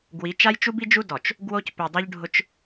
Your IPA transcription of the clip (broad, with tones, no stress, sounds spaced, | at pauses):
ɡ w i˨˦ t͡ʃ a˦ j t͡ʃ u˦ b i˦ d͡ʒ u˦ d ɔ˨ t͡ʃ | ɡ w o˦ c p i˨ dˤ u˦ ʎ ɖʱ ʊ˦ t͡ʃ